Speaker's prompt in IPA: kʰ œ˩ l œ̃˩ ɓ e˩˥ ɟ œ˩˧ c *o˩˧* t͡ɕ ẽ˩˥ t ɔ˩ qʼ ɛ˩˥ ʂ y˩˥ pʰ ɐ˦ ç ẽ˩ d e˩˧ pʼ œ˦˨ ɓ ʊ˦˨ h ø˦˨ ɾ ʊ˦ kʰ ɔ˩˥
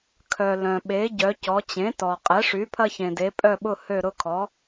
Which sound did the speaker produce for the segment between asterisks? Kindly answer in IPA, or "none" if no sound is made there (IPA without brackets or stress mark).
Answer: ɔ˩˧